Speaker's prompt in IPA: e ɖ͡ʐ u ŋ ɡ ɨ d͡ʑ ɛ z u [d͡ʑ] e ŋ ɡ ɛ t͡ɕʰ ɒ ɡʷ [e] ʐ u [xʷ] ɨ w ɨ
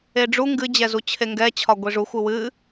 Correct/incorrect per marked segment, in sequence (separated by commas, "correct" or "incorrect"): incorrect, incorrect, correct